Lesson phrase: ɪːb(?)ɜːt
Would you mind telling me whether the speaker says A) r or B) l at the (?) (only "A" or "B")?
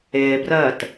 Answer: A